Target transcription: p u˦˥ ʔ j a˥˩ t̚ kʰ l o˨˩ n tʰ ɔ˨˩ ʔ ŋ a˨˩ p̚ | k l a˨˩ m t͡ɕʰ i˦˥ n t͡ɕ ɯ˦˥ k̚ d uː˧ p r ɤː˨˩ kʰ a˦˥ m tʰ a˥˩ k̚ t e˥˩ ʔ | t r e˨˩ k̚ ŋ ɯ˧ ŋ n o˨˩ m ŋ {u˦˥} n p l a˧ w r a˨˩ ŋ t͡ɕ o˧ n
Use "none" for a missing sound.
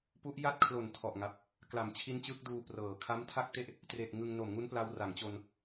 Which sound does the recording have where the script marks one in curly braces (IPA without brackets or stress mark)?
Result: u˦˥